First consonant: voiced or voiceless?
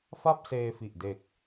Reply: voiceless